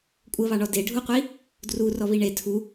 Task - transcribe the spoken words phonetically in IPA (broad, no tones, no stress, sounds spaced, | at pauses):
kʷʼ ə β ɑ ɳ ɔ d e ɖʱ u qʷ i | d r u r ɔ β i ɳ e tʰ u